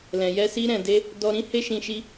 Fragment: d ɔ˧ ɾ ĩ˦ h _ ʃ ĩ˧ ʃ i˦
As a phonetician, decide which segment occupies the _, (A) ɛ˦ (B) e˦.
B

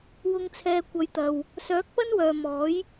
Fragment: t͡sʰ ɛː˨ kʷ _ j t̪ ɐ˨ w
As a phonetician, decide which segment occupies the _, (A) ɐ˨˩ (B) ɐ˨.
B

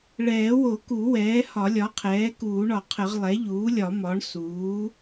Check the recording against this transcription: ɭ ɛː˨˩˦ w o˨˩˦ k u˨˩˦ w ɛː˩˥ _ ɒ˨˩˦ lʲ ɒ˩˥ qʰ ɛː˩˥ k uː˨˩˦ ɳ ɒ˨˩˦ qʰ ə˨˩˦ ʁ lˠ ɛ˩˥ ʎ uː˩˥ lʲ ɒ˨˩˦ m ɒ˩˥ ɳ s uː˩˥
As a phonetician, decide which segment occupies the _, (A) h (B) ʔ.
A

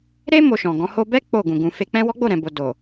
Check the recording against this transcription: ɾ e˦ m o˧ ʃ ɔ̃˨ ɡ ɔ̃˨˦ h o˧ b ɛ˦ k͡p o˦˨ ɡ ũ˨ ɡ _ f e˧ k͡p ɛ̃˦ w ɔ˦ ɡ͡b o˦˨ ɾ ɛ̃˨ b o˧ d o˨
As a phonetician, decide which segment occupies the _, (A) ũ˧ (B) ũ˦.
A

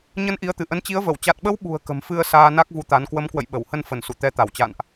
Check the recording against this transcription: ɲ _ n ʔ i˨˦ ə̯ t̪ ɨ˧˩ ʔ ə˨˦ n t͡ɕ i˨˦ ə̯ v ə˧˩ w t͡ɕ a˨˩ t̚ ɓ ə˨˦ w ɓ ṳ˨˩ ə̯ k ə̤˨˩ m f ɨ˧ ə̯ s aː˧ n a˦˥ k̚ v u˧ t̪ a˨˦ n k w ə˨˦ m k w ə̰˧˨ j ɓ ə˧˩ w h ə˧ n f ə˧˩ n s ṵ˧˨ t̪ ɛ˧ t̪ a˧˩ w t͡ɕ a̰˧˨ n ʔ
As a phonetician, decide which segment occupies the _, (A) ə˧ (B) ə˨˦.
A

